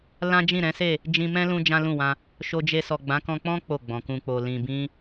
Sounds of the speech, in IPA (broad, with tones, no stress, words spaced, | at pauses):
lã˦d͡ʒĩ˦˨ɾɛ̃˨˦se˦˨ | d͡ʒĩ˧mɛ̃˦lũ˧ d͡ʒã˦lũ˦˨wã˧ | ʃo˧d͡ʒe˧ sɔ˨ɡ͡bã˨˦kɔ̃˧k͡pɔ̃˦ k͡po˦˨ɡ͡bɔ̃˨ kũ˨k͡po˨ lĩ˨bĩ˧